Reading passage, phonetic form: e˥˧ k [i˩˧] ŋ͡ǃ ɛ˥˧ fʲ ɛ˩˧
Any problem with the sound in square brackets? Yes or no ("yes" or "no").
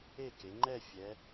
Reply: yes